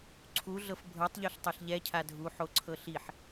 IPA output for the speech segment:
ǀʰ u ɮ ɤ f bʱ ɤ tˤ ʎ o ɬ tˤ ɛ ɬ ʎ ɛ cʰ a dʱ u ħ o ǀʰ ɤ ɬ i ħ

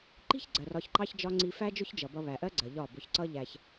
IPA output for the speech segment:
ǃ i̤˦ ç ɡ͡ǀ ɜ˨ r ɒ˧ ç ǃ ɑ˦ ç d͡ʒ ɒ˦ ŋ͡ǀ i˧ f æ˦ d͡ʒ ʊ˦ ç d͡ʒ ʌ˨ b ʌ˧ β æ˨ ʔ ɜ˦ ɡ͡ǀ ɜ˨ ʎ ɒ˦˨ b ʊ˧ ç ǀ ʌ˦ ʎ æ˧ ç

